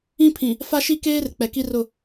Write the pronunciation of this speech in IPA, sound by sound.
ĩ˦ pʰ ĩ˨ | f a˦ ʃ i˦ k eː˦ r k͡p ɛ˨ k i˦ r ʊ˦˨

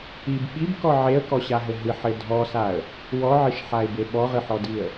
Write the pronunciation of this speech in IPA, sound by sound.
i b ɓ i b k ɔ ʕ e ə̯ k ɔ ɕ a ɦ ɘ ɦ ɨ ħ ɘ dʱ ɔ s a ə̯ | w ɔ ʕ ɨ ʃ ħ a ɪ̯ b e ɓ ɔ ʁ ɨ ħ ɔ d i ə̯

